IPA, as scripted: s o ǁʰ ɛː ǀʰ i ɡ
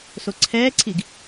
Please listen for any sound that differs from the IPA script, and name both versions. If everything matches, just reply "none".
ǁʰ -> ǀʰ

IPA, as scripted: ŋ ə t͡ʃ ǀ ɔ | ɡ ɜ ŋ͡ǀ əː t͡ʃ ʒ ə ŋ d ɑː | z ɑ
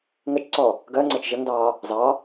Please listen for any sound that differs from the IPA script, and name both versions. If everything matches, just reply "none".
none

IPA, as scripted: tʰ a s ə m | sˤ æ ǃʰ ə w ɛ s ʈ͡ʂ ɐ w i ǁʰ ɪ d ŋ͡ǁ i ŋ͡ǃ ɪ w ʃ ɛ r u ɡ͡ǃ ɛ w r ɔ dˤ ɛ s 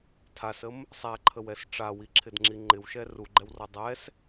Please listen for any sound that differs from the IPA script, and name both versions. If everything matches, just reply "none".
ɐ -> a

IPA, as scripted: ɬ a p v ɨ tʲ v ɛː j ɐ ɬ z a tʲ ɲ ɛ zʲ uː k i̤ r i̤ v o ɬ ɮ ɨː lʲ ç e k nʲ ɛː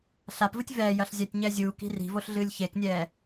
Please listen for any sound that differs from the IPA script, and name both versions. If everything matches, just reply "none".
z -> zʲ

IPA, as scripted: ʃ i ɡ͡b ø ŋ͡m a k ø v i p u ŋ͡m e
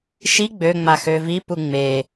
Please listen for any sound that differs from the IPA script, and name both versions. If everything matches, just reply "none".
k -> x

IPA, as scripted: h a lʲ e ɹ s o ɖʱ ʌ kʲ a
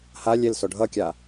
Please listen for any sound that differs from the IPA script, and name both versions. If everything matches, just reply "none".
ɹ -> l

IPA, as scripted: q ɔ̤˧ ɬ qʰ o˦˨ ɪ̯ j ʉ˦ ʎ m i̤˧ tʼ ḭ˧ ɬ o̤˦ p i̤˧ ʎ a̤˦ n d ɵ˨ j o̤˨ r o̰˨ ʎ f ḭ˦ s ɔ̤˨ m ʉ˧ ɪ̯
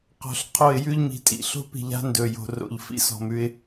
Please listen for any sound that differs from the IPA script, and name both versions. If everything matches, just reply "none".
none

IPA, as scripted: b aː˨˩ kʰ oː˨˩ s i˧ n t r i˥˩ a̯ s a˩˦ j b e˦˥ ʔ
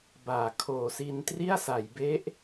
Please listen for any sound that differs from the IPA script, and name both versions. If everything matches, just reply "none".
none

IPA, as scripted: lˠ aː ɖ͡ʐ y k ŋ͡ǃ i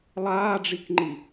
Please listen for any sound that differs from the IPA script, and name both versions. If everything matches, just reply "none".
y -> i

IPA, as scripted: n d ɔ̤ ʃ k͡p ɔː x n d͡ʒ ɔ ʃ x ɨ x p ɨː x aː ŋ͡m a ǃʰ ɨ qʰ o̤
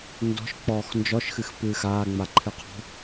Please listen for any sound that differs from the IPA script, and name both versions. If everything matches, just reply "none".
o̤ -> ɔ̤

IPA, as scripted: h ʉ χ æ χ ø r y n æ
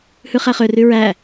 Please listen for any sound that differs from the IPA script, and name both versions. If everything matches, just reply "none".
n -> ɹ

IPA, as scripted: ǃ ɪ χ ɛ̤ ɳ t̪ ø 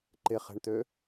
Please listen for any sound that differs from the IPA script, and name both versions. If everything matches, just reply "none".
none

